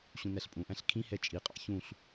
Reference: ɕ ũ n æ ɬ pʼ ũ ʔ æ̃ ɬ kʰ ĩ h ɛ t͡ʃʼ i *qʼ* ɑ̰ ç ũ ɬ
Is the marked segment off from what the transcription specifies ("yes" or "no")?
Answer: no